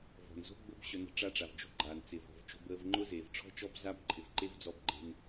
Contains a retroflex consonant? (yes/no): yes